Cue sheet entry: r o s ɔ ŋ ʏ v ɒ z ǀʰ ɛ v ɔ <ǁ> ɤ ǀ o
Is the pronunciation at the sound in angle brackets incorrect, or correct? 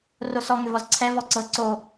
incorrect